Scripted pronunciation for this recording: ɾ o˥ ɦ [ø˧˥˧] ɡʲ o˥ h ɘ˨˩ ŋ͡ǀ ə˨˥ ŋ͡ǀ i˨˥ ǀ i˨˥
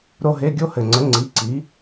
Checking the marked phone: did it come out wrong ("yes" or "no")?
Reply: yes